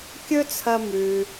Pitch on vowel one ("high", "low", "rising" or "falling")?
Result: high